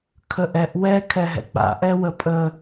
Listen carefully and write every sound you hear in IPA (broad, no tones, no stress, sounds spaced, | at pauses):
kʰ ə ʔ ɛ ʔ w ɛ kʰ ɛ ɦ ɛ̰ k͡p a̰ ʔ ɛ w ə pʼ ə